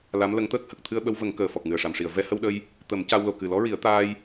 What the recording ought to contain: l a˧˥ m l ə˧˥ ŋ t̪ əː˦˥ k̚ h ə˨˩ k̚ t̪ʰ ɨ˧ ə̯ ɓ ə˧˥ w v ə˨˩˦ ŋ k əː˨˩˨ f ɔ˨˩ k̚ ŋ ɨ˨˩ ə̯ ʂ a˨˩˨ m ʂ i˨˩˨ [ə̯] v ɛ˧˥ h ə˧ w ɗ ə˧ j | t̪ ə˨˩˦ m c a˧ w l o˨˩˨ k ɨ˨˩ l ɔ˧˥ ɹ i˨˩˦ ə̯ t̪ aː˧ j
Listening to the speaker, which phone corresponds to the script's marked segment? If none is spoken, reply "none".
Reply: ə̯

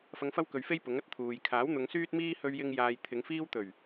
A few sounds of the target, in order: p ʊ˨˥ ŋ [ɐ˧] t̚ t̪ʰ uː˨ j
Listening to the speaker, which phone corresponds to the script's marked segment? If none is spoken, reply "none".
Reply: ɐ˨˥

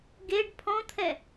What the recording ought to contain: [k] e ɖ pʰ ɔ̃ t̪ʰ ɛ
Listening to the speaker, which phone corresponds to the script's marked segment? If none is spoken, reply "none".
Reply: ɡ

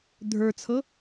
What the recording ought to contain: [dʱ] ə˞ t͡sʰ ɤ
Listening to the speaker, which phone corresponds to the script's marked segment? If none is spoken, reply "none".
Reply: dʱ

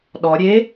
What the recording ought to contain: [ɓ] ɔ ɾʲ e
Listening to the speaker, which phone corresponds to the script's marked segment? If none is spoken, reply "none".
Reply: ɗ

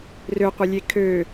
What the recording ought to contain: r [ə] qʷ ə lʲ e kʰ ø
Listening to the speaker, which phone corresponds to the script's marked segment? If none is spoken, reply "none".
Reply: ø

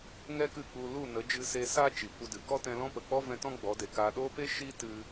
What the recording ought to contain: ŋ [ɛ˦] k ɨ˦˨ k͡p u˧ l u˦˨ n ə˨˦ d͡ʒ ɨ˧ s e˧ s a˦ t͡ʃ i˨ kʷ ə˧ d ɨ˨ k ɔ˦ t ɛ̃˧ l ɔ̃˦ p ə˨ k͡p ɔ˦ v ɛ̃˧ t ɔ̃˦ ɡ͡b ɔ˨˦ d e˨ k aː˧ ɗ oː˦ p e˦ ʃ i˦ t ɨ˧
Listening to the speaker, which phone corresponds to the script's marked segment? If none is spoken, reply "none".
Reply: ɛ˦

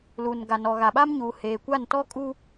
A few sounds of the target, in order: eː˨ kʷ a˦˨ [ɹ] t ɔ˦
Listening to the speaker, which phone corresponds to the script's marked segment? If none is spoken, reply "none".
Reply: n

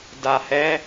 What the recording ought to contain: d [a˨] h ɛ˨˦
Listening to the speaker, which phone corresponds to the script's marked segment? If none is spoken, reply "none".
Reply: a˨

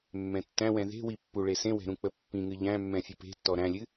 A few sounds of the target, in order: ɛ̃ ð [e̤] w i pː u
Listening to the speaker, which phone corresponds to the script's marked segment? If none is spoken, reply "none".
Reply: e̤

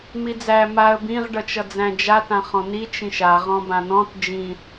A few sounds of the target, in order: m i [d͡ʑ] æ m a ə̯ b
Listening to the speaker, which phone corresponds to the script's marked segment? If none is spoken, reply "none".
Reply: d͡z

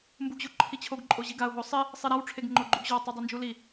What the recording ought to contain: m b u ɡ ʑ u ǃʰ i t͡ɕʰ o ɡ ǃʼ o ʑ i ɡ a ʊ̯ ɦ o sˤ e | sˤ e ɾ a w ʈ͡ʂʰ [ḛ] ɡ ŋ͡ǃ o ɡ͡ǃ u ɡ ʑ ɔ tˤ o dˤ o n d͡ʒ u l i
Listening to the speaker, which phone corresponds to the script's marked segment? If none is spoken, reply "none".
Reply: e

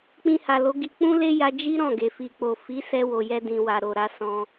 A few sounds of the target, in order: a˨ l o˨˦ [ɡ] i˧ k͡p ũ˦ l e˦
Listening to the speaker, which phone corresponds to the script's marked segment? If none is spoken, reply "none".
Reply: ɡ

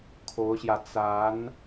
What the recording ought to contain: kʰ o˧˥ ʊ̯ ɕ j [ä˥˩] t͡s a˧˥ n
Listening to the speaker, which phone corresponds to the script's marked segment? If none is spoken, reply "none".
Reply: ä˧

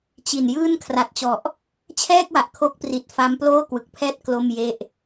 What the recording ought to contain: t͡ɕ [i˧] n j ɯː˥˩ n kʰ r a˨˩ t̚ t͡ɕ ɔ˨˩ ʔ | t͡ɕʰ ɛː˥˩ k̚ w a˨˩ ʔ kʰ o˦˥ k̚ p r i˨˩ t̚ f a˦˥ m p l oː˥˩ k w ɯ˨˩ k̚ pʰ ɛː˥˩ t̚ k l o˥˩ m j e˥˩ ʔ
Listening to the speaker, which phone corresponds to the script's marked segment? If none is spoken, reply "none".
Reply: i˨˩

